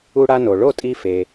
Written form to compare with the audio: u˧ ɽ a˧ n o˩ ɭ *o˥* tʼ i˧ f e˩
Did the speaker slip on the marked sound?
yes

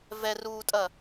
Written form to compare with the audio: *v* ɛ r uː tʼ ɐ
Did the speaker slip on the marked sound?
no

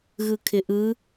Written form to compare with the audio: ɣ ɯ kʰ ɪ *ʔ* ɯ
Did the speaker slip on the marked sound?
no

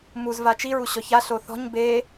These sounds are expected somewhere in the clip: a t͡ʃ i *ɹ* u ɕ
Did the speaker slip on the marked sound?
no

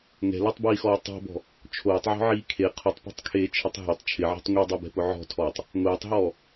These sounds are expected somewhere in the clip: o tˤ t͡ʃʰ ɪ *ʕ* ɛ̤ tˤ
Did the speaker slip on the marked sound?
no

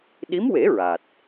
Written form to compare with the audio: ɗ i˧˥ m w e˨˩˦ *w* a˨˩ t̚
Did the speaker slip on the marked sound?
yes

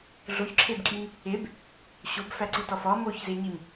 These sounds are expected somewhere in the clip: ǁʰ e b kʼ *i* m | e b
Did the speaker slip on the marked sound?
no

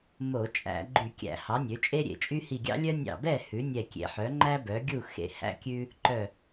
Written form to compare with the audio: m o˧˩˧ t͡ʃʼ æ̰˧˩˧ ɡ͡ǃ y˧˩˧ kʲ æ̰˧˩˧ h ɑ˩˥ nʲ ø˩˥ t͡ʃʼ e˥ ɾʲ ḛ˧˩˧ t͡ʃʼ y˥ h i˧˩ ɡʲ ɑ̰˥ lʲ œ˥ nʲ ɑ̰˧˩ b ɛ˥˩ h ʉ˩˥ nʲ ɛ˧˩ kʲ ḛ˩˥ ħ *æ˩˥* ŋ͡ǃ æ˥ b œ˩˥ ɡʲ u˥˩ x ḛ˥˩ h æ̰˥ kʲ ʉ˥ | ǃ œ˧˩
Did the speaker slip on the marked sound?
yes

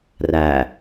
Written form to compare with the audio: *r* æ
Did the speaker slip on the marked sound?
no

